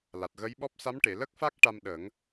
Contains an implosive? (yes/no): yes